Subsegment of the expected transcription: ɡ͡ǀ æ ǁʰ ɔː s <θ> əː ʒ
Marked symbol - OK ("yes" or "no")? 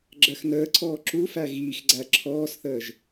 yes